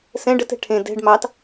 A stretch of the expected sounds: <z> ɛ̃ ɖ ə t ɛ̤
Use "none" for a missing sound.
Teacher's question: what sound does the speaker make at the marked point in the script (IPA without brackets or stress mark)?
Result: s